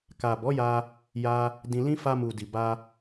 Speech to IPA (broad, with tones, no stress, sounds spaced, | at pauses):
k a˨ b ɔ˨˦ j a˧ | j a˧ | d ĩ˧ l ĩ˦ f a˧ m u˨ d i˨ b a˧